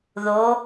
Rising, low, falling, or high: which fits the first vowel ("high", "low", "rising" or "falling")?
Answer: rising